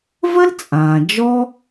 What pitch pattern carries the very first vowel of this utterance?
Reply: high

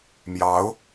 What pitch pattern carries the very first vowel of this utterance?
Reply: rising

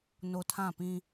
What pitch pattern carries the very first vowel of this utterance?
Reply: low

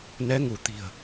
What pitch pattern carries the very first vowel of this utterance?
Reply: rising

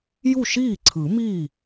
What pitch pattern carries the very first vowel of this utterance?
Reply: falling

